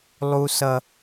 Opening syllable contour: high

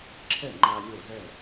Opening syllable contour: falling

